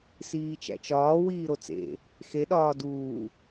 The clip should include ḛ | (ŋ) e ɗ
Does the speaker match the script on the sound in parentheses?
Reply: no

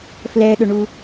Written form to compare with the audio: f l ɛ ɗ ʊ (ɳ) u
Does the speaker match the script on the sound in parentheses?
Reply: yes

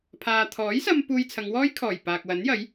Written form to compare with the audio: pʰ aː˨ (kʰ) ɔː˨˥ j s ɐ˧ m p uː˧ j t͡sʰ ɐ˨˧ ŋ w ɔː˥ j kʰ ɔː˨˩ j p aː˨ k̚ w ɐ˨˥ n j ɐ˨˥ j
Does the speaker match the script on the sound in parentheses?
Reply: no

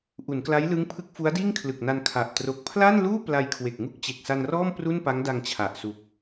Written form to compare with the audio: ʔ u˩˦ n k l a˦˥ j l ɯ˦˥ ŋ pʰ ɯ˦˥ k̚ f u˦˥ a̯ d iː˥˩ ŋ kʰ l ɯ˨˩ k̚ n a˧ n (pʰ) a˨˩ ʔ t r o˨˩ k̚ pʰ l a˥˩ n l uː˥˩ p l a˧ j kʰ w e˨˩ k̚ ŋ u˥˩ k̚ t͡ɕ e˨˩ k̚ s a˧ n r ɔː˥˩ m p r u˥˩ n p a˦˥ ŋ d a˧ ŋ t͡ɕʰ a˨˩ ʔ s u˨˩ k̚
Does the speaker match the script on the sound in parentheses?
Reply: no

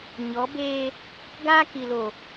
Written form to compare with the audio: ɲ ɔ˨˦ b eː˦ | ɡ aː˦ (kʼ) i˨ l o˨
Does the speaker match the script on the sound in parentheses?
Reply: no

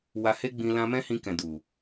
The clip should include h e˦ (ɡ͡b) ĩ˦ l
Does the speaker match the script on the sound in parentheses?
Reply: yes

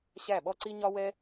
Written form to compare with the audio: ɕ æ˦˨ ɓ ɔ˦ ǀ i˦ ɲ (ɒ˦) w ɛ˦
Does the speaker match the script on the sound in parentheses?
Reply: yes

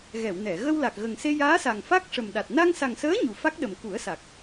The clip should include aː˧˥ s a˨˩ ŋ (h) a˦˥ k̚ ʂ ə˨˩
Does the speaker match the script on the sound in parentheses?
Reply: no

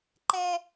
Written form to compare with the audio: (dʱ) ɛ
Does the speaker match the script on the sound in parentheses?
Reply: no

